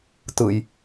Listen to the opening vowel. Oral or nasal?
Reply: oral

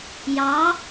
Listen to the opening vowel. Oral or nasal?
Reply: oral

